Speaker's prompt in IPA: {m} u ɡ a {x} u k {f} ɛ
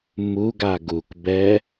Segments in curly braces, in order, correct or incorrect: correct, incorrect: ɡ, incorrect: b

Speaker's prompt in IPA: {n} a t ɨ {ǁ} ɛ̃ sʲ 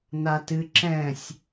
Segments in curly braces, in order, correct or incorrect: correct, correct

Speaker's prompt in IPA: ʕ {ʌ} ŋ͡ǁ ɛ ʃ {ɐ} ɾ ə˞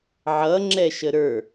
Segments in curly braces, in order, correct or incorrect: correct, incorrect: ə

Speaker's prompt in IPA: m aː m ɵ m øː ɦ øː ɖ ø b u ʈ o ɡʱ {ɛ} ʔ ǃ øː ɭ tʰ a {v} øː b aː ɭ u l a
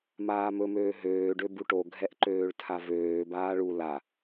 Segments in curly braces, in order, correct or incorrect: correct, correct

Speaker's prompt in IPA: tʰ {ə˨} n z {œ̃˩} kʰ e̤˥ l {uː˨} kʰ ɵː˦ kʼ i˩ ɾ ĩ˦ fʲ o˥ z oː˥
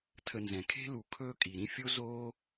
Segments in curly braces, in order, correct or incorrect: correct, incorrect: ɛ̃˩, incorrect: u˨

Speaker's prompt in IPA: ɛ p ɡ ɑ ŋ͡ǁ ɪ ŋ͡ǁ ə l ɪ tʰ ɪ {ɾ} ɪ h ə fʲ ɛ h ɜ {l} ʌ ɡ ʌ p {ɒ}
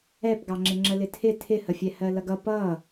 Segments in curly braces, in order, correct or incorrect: incorrect: tʰ, correct, incorrect: ʌ

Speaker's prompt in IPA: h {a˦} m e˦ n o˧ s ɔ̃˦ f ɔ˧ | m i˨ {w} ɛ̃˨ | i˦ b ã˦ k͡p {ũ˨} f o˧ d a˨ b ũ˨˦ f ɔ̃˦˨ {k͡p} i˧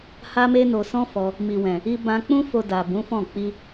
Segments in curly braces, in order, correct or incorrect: correct, correct, incorrect: ũ˦, correct

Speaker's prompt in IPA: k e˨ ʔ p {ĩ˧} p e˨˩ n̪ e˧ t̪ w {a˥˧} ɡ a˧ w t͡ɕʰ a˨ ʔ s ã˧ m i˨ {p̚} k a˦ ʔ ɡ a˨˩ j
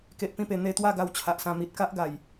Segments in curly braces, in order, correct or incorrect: correct, correct, incorrect: t̚

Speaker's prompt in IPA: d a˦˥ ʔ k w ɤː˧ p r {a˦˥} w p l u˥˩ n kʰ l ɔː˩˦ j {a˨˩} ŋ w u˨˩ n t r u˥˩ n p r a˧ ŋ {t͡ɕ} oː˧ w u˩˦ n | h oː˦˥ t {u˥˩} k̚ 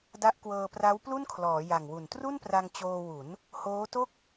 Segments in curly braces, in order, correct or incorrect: correct, correct, correct, incorrect: o˥˩

